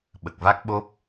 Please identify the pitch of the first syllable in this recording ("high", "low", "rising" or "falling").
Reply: low